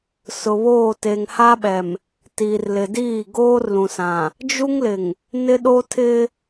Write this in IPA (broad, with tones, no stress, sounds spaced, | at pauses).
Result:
s ʊ˨ β oː˦˨ t e˨ ŋ h a˦ ɓ ɛ˨ m | t iː˨ r l ɪ˨ d iː˦˨ ɡ oː˦ r l ũ˨ s ã˨ | d͡ʒ u˦ ŋ l ɪ˨ ŋ | n ɪ˦ ɗ o˦ tʰ ɪ˦